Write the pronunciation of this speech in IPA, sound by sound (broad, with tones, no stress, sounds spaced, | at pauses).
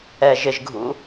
ɛ˨ ʒ ɪ˨ ʒ ɡʱ ṵ˨˦